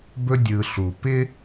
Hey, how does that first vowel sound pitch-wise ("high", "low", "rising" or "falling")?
high